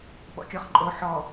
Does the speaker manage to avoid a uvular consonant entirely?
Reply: no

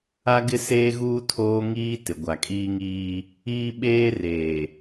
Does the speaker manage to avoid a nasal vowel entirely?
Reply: yes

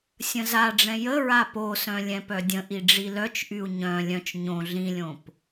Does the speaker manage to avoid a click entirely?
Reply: yes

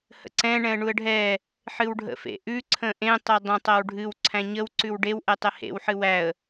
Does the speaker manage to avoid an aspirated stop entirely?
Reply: no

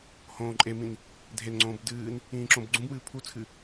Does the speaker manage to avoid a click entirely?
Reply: no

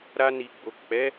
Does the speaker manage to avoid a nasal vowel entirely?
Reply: yes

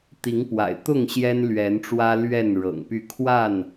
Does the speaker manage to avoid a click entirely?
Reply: yes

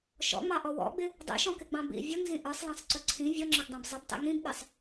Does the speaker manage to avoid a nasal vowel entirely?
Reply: no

